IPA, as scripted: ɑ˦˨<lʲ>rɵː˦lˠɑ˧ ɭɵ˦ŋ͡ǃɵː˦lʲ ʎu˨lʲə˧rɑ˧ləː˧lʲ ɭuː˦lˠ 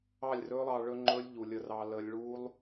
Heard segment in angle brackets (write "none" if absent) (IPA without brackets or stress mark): lʲ